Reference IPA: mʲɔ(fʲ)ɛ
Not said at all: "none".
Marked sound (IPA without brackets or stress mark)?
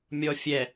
fʲ